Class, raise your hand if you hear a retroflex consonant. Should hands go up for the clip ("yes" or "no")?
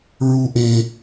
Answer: no